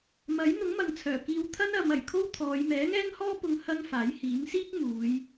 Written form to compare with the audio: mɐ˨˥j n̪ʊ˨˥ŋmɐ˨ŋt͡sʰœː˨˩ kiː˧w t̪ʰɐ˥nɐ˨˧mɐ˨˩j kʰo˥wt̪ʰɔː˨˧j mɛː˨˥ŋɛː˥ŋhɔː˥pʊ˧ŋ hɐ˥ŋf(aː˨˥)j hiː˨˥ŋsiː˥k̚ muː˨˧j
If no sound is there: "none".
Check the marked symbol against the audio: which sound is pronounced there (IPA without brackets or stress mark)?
aː˨˥